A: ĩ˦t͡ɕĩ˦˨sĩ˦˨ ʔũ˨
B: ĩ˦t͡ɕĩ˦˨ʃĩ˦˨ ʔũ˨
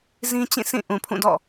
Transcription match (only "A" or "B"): A